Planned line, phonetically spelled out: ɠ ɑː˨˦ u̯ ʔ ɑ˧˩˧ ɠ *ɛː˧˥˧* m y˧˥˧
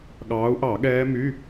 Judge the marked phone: incorrect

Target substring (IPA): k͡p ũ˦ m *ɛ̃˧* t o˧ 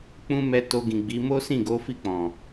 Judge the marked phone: incorrect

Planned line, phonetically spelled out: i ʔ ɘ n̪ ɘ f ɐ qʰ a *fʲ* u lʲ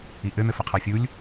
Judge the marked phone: correct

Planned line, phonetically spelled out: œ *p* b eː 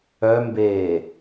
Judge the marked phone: incorrect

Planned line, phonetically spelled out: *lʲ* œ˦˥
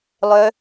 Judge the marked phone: incorrect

